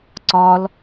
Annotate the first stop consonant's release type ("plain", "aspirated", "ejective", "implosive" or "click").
click